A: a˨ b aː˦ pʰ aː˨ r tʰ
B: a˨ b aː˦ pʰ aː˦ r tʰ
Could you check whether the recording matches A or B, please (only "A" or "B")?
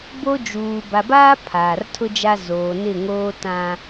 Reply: A